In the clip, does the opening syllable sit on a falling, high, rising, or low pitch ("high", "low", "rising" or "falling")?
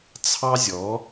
high